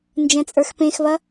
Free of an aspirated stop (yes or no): yes